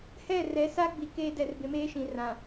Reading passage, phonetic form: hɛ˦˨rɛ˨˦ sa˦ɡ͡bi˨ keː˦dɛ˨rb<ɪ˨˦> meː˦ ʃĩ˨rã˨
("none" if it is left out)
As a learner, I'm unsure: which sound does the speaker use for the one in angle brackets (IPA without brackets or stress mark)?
ɪ˨˦